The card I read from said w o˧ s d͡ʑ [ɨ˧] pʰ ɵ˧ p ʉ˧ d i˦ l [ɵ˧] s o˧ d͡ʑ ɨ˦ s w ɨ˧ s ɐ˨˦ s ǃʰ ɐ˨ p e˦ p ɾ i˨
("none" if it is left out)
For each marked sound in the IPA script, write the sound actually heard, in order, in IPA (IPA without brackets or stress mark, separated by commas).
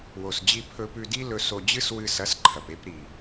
i˧, ɵ˧